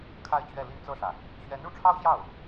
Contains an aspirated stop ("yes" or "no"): yes